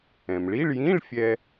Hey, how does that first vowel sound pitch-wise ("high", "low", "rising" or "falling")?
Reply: low